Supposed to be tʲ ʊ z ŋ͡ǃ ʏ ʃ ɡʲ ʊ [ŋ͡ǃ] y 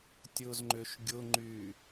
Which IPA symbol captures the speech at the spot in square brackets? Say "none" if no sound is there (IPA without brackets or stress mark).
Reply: ŋ͡ǃ